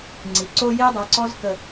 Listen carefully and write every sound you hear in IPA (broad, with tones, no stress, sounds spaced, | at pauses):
ŋ͡ǀ i˨ ǀ o˦ j e˦ dˤ a˨˦ ǀ ɔ˦ z k ə˦